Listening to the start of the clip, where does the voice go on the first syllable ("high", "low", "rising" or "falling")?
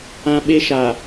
high